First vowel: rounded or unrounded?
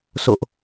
rounded